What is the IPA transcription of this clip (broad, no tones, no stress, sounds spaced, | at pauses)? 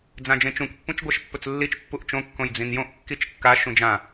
d͡z ã d͡ʒ ẽ t͡ʃ ũ k pː ũ t͡ʃ ɡʷ a ʃ pː ɵ t͡s lː i t͡ʃ pː u ʔ t͡ʃ õ kː õ j d͡z ĩ n j õ ʔ kː i t͡ʃ kː a ʃ ũ d͡ʒ ã